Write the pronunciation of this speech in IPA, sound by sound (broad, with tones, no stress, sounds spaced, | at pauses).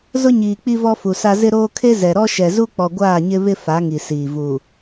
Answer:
z ʊ˦ ɲ iː˨ k͡p i˦ v ɔ˦ f u˨ s a˦ z ɪ˦ ɾ oː˦ kʰ e˦ z ɛ˨ ɾ ɔ˦ ʃ ɛ˨ z u˦ k͡p ɔ˨ ɡʷ aː˦˨ ɲ ɪ˦ β ɪ˦ f a˨˦ ŋ i˨ s iː˨ v u˨